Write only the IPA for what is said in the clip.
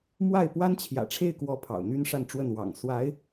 m w a˥˩ ɪ̯ p w a˥ n t͡ɕʰ j ä̰˨˩ ʈ͡ʂʰ e˥˩ ɪ̯ k w ɔ˧˥ pʰ ɑ̰˨˩ ʊ̯ n̪ y˥ n ʂ a˥˧ n ʈ͡ʂ w ə˥˩ n w ɑ̰˨˩ ŋ s w a˧˥ ɪ̯

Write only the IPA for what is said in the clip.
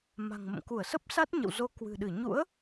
m a̤˨˩ ŋ m ə̰˧˨ m k u˧˩ ə̯ s ə˦˥ p̚ s a˦˥ t̚ ɲ ə̰˧˨ w z o˨˦ k w ɨ̤˨˩ ɗ ɨ˧˩ ɲ ṵ˧˥ ə̯

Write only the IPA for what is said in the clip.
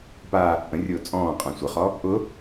p a | ʔ ə̃ rʲ ʊː t͡sʼ ɔ̃ː qʼ ã sʷ ə χ ɔ | ʔ ʊ

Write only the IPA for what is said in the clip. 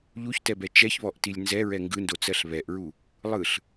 ʎ u ç t ɛ b ɛ t͡ʃ ɛ ç β ɔ ʔ t i lʲ n z ɛ ɹ ɛ ŋ ɡ ɯ n d o t͡s ɜ ɬ β ɛ ʔ ɹ u | lˠ ɯ ɬ

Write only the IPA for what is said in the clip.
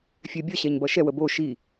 fʲ ɛ bʲ ʌ ɕ ɛ ɲ b ʌ ʃ ɛ w ə b o ʃ i

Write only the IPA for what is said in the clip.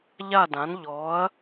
ʎ a˥˨ d ã˩˥ n ʎ ɔ˩˥ ɐ̯

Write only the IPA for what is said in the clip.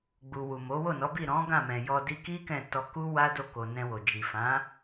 ɡ͡b u˨ w u˨ m o˨˦ w o˦˨ n ɔ˨˦ b i˦˨ ɾ ɔ̃˨˦ ɡ ã˦˨ m ɛ̃˨ j ɔ˧ d i˧ k i˦ k ɛ̃˦˨ t ɔ˧ k u˦ w a˦ d o˦˨ k o˨ n ɛ̃˧ w o˨ d͡ʒ i˨ f ã˨˦

